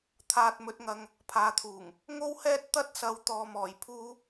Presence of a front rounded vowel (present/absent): absent